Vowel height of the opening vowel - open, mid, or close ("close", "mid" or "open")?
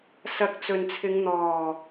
open